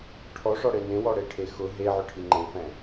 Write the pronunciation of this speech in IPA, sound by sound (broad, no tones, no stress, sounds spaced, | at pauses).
ʈʰ ɔ ʂ ɔ ɽ e n ẽ w ɔ ɽ e ʈʰ e x ʊ ɦ e ʕ ʊ ʈʰ i ŋ͡ǃ ẽ f ɛ̃